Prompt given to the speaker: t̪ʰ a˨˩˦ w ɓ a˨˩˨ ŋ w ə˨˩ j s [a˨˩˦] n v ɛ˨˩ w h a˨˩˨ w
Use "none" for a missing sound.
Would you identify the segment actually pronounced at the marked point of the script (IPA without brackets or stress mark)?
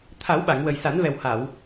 a˨˩˦